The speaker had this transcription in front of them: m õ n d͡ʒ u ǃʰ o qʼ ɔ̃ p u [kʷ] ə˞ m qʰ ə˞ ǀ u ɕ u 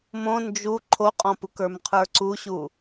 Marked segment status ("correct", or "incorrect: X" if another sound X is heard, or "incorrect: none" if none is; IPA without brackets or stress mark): incorrect: k